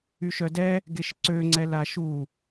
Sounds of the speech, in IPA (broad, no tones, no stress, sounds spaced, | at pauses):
y ʃ œ d ɛ | ɡ e ʃ ǀ ø ŋ͡ǀ ɛ l a ʃ u